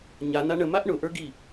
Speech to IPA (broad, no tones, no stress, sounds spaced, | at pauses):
ɲ a n a ɳ ə m a ʔ ɳ ʊ ʔ ə˞ ɡ i